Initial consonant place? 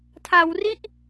alveolar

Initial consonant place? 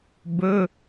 labial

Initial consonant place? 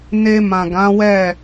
alveolar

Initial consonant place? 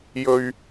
palatal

